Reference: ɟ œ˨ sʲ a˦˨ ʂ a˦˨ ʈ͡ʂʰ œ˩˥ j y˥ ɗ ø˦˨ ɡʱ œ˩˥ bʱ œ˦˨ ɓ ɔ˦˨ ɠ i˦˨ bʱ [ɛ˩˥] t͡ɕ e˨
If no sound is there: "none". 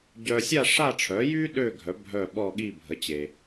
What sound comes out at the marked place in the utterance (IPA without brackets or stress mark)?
ə˩˥